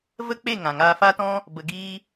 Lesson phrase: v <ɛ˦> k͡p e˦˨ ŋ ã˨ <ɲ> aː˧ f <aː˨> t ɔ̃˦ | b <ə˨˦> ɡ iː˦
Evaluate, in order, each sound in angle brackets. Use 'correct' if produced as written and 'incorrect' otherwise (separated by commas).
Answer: incorrect, incorrect, incorrect, incorrect